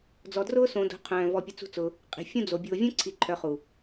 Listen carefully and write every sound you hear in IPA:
d͡zɔ˨drʊː˦ sõ˧do̤˧qʰœ̃ː˨ vɔ˧pʲʊ˧t͡sṳ˦t͡sʊː˧ | qʼi̤˨fʲũ˦d͡zo˨ bʲʊː˨vʲõ˦ǀʰi˨ ǃʰœ˧χu˨

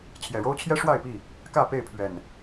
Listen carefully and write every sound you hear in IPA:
t͡ɕʰjɛ˨˩ɻo˦ʊ̯t͡ɕʰjɛ˦ ʂwa˥˨ɪ̯pi˥˨ | kä˥˨pe˥˨ɪ̯pʰɥɛ˨˩n

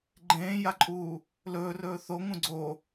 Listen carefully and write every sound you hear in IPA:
ɡ͡ǃẽːjaǃʼuː | lɵːrɵː θoŋũ ɡ͡ǀo

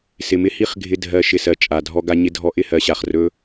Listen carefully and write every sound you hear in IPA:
sɪ˨mɪ˧ hi˦χ ɡʱɪ˧ dʱɜ˧ ʃɪ˧sɜ˨ t͡ʃʼa˨ dʱɔ˧ɡa˧ ɲɪ˦dʱɔ˦ ʔɪ˦hɜ˨˦ɕa˨χrɵ˦

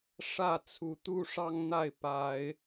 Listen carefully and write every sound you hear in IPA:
ʂä˥˨t͡sʰu˨˦t̪u˦ ʂɑ˦ŋn̪a˥˨ɪ̯ pa˨˦ɪ̯

